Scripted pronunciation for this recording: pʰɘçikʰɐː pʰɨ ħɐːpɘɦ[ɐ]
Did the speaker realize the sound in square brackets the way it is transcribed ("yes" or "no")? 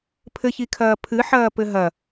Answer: yes